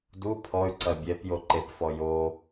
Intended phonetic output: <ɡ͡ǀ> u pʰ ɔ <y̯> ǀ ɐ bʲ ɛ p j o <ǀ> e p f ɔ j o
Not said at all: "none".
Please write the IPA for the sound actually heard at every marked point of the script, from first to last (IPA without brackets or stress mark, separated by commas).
d, y̯, ǃ